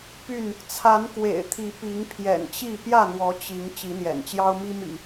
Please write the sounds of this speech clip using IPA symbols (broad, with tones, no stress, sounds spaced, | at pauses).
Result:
p y˥˨ n | t͡sʰ a˨˦ n k w ḛ˨˩ ɪ̯ t̪ʰ i˨˦ p i˨˦ ŋ pʰ j ɛ̰˨˩ n t͡ɕ i˥˨ p j ä˥˨ n̪ w ɔ˨˦ t͡ɕ i˨˦ ŋ t͡ɕ i˨˦ n̪ j ɛ̰˨˩ n t͡ɕ j ɑ˦ ʊ̯ m i˦ m ḭ˨˩